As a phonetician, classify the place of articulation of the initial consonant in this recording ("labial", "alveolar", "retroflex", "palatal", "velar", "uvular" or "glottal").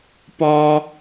labial